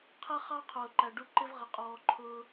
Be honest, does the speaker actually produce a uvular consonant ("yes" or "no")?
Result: yes